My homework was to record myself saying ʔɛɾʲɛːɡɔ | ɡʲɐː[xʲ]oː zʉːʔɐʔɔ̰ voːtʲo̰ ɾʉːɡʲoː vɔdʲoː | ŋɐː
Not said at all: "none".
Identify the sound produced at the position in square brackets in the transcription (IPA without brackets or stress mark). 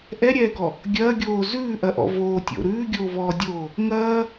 ɡʲ